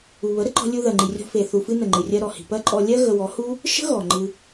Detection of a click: present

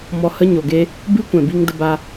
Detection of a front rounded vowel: absent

